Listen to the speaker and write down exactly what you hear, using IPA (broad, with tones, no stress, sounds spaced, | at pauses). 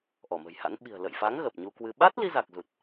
ʔ ɔ˧˩ m ə̤˨˩ j h a̰˧˥ n ɓ i̤˨˩ ə̯ l ə̰˧˨ j f a˨˦ ŋ ɣ ə˨˩ p̚ ɲ u˧ k w ɨ˧ ɓ a˦˥ t̚ l i˧ z a˨˩ k̚ z u˨˩ t̚